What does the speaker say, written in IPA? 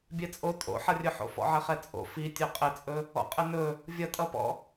bʲ ɛ t͡sʼ o tʼ o̰ ħ ʌ rʲ ɵ ħ o̰ f ɔ̰ ʕ ɘ χ ɛ t͡sʼ o̰ f i tʲ ɵ qʼ ɘ t͡sʼ ɵ | ɔ̰ qʼ ɘ n ɵ | vʲ ʌ tʼ ʌ p ɔ̰

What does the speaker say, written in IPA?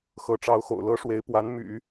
x ɤ˧˥ ʈ͡ʂ ɑ˧˥ ʊ̯ x o̰˨˩ ʊ̯ l ɤ˥ ʂ w e˧˥ ɪ̯ p w a˧˥ n m y̰˨˩˦

